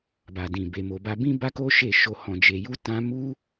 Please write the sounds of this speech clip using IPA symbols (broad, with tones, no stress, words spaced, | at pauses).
ba˨dĩ˨ be˨mo˨ba˧ bĩ˦ba˦ko˦ ʃe˦˨ʃo˧ hɔ̃˨d͡ʒe˨ju˧ tã˦ mu˦